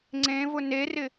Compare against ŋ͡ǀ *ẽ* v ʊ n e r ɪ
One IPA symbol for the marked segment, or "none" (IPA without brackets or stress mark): ẽ